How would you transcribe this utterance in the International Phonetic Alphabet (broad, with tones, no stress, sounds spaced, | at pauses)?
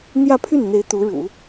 n̪ j ä˥˧ pʰ y˥˩ n n̪ e˧˥ ɪ̯ t̪ u˧˥ ɻ ṵ˨˩˦